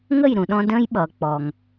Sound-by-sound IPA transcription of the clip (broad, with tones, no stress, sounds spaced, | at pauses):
ŋ ə˦˨ j ɾ ũ˨ ɗ ɔ̃˧ d ə̃ː˦ j ɓ ʌː˨ k͡p ɔ˨ ŋ